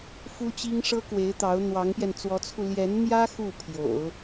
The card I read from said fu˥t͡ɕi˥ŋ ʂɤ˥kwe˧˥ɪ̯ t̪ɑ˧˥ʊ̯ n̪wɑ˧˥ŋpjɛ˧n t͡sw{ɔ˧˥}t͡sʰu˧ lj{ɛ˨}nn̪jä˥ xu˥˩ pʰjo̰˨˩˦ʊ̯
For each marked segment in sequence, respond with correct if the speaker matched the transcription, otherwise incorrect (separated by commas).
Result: correct, incorrect